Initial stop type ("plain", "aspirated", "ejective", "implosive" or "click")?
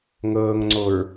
click